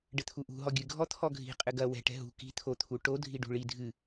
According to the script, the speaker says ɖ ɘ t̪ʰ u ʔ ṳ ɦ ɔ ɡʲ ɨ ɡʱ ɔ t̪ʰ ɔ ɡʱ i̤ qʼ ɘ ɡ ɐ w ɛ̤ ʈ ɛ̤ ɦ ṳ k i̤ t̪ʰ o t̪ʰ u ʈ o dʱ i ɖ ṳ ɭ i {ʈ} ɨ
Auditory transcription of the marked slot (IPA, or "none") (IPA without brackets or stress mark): dʱ